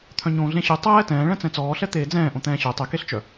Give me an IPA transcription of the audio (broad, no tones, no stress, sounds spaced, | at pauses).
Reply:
t̪ʰ œ̃ ɲ õː ɮ ẽ ɕ ʉ tˤ ɛː t ɛ̃ː ɭ ɛ̃ t͡s ɛ̃ t͡s ɔː ɬ ɛ t̪ eː d͡z ɛ̃ː ʔ õ t̪ ɛ̃ː ɕ ø tˤ e k e ɬ t͡ʃ œ